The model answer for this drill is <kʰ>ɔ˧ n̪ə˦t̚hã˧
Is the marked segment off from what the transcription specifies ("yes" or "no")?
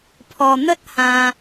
yes